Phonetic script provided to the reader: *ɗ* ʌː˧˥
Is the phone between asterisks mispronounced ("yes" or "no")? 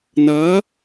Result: yes